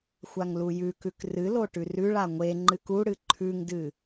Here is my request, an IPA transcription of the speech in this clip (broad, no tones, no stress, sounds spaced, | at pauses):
xʷ a ŋ l u j ʉ k ʉ k r ɨ l o ʈ ʉ r ʉ ɭ a ŋʷ e ŋ͡ǃ ɨ k u ɽ ɨ ǃʰ ʉ ŋ d ɨ